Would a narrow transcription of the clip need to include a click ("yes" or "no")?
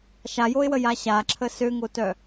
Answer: yes